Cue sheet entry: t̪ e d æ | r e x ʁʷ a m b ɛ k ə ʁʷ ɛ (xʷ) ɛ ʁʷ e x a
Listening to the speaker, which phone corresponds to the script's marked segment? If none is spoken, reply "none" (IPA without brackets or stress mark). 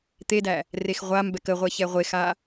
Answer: ç